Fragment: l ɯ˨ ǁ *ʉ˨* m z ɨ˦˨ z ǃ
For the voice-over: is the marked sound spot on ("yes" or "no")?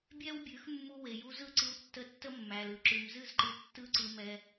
yes